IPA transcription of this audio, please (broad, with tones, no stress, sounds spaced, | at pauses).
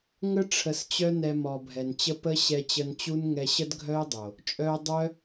ŋ ə˦ ʈ͡ʂʰ ə˧ s t͡ɕ œ˦ n ɛ˧ m ɔ˨ bʱ ɛ˨ n t͡ɕ ə˧ p ə˧ ɕ ɛ˧ t͡ɕ ə˧ n t͡ɕ u˦ n ŋ ɛ˧ ɕ ə˦ d ɡʱ œ˦ ɪ̯ dˤ o˨ | t͡ʃʼ œ˧ ʊ̯ dˤ œ˦